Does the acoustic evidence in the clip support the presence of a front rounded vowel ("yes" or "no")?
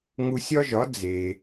no